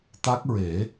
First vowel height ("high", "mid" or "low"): low